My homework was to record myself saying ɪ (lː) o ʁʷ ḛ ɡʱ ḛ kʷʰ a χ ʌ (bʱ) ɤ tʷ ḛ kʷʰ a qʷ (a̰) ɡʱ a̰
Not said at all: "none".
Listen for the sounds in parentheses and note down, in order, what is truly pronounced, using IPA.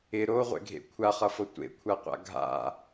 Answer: ɾ, f, a̰

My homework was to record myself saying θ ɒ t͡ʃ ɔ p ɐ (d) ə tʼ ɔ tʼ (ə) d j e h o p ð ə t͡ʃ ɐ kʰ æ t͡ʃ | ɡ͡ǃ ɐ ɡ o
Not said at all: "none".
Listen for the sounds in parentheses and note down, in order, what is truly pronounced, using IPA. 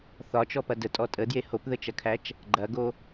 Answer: d, ə

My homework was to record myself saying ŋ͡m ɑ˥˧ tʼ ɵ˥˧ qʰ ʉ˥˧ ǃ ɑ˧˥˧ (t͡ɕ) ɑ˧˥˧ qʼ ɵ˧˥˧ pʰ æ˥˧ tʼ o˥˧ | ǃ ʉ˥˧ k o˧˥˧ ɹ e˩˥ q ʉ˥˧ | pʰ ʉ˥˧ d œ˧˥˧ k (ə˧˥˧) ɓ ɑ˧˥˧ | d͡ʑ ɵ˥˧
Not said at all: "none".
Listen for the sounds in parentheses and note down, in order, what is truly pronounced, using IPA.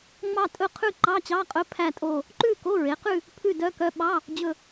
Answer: t͡ɕ, œ˧˥˧

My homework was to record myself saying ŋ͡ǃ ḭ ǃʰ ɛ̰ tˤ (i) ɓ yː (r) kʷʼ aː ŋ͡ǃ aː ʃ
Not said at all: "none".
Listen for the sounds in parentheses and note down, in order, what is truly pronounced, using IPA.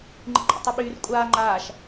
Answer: i, r

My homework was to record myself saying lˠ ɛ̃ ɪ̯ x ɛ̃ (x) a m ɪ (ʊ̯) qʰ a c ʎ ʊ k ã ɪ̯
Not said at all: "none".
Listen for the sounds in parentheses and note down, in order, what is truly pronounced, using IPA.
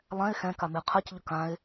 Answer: k, ə̯

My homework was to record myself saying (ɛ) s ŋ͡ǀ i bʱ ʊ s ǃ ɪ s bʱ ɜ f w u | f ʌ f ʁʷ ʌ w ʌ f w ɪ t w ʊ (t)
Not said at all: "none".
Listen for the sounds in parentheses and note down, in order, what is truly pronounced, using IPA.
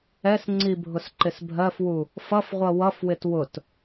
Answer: ɛ, t

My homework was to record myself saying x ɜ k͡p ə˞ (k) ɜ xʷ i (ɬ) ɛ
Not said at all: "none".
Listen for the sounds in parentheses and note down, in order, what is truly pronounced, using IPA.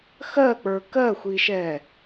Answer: k, ʃ

